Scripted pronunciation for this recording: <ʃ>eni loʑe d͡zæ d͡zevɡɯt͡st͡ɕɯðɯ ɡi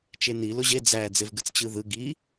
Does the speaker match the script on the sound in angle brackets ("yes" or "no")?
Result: no